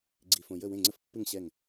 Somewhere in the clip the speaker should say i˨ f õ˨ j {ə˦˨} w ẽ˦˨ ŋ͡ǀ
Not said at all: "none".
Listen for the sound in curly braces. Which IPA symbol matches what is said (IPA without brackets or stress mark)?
ə˦˨